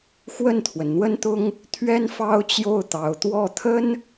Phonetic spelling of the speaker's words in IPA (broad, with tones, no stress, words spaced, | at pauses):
xwə˥˩nt̪ʰwə˩n n̪wə˥nt̪ʊ˥ŋ | t̪ʰɥɛ˥nfɑ˥ʊ̯t͡ɕjo˥˩ʊ̯ t̪ɑ˧˥ʊ̯ t̪wɔ˥˩t̪ʰə˥n